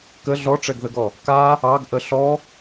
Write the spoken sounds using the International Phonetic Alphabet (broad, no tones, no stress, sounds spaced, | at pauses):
k ə ɮ ɔ ʈ͡ʂ ɛ ɡ ð ə ɡ ɔ | k a | ɑ ɡ ʔ ə ɬ ɔ